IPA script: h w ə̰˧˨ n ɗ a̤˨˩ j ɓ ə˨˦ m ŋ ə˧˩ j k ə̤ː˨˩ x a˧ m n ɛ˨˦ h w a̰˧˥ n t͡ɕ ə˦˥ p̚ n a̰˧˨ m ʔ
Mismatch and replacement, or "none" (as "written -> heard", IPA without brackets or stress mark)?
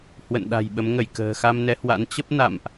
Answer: none